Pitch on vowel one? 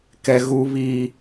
high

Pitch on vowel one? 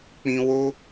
high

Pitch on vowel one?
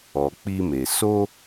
low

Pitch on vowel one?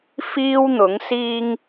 high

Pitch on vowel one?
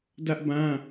high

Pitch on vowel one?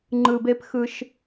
low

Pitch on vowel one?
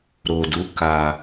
low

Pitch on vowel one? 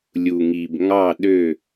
low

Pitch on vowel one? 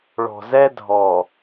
low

